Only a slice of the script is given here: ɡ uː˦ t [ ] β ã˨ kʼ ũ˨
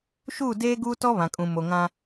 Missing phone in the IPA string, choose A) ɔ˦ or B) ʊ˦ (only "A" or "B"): A